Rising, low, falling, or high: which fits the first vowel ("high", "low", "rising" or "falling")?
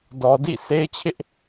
low